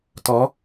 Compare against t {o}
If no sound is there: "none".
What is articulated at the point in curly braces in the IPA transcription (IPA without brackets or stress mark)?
ɔ